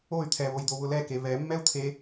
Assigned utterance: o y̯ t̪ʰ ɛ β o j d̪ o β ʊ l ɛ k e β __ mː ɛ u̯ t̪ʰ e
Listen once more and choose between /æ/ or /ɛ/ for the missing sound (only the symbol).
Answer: ɛ